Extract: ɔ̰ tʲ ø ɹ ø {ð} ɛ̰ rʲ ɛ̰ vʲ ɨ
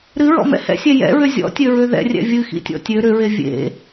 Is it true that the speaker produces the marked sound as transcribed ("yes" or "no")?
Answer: yes